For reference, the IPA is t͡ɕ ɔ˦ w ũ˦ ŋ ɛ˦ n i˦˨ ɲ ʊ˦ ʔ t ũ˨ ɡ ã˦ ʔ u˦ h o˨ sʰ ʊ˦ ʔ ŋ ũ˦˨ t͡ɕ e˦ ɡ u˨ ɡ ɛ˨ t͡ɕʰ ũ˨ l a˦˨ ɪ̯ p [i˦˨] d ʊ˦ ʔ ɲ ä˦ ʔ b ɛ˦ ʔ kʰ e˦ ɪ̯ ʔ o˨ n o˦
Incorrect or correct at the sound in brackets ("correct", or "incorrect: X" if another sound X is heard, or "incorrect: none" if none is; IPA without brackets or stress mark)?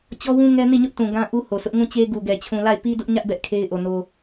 incorrect: i˦